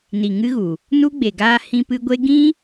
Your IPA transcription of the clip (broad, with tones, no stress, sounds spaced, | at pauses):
n i˨ ŋ ɨ˦ ɣ u˨ | n u˦ ɡ͡b e˨ ɡ aː˧ h ĩ˧ p ɨ˧ ɡʷ e˦ ɡ ĩ˦